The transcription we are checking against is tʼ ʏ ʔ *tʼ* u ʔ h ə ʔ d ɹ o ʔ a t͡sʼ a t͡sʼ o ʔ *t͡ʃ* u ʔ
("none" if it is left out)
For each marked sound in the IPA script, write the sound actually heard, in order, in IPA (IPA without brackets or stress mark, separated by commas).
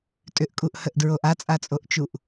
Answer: kʼ, t͡ʃ